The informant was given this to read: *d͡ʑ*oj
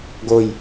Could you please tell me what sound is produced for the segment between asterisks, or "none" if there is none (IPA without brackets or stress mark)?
ɡ